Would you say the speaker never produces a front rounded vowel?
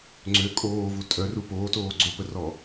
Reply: no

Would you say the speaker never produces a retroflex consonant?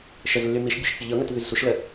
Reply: yes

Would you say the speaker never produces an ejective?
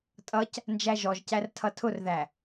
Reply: no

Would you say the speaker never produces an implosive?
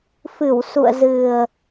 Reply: yes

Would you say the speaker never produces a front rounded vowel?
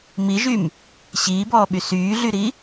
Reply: no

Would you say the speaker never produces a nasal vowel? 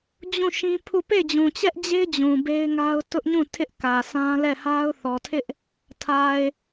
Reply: no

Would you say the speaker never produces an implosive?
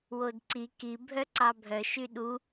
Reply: no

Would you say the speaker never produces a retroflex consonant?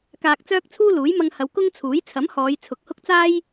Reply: yes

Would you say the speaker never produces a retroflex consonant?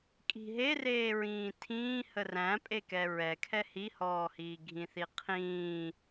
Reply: yes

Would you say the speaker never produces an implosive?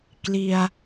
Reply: yes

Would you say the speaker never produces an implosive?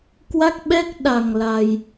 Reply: no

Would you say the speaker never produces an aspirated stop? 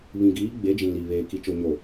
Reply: yes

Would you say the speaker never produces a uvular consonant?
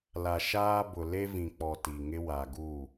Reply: yes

